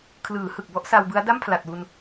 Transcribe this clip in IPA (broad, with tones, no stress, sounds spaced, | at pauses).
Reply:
kʰ l ɯː˩˦ h ɯ˨˩ k̚ b ɔ˦˥ ʔ s a˧ w b ɯ˦˥ a̯ d a˥˩ m pʰ l a˨˩ t̚ w u˧ n